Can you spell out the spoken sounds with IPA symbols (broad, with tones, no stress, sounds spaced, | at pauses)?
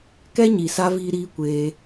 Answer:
k ɛ˦ ɲ i˨ s a˧ v iː˦ ɾ iː˦ kʷ eː˧